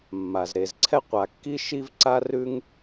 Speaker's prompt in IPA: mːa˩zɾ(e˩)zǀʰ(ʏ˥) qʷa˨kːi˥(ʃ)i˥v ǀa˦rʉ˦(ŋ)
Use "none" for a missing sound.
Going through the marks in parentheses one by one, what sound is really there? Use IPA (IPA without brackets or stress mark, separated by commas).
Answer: e˩, ɛ˥, ʃ, ŋ